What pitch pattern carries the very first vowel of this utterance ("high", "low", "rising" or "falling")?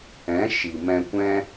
rising